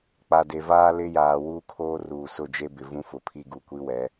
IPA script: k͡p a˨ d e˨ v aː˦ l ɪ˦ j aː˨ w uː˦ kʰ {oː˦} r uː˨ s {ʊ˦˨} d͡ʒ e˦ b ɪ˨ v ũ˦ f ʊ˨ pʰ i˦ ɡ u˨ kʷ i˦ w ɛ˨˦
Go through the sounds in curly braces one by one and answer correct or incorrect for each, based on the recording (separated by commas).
correct, correct